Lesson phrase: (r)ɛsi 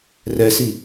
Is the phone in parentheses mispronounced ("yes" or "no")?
no